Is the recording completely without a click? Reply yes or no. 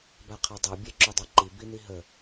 no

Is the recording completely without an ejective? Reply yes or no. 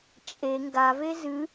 no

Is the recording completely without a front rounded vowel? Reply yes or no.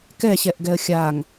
yes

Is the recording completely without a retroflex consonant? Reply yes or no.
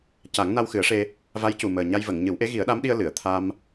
no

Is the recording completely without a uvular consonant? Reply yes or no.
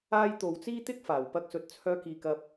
yes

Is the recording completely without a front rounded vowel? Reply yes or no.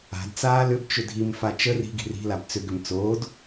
no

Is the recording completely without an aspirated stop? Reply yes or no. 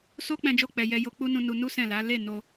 yes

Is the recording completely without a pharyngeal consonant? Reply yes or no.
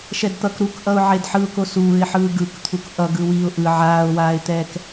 no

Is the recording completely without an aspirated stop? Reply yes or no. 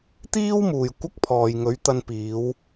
no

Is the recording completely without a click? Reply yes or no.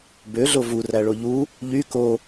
yes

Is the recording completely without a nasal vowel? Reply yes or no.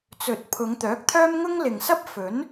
yes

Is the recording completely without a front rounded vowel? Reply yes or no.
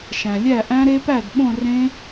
yes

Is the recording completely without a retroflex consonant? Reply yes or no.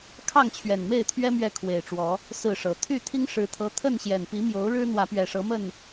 no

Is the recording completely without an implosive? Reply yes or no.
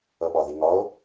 no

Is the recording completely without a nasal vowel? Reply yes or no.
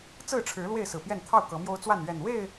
yes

